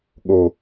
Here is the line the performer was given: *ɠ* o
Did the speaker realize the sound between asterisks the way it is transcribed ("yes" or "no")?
yes